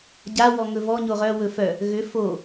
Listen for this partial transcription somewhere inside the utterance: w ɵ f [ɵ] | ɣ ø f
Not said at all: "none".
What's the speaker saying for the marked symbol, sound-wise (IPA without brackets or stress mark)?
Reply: œ